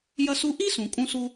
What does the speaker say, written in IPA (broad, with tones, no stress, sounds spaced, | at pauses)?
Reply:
j ɐ˦ s u˦ ʔ i˥ s ũ˩ kʼ ũ˦ s u˦